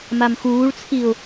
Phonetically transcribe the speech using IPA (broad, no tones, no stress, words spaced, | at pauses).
mamxuːɭt͡sʰiʊ̯